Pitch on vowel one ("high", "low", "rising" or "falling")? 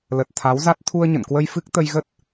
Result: low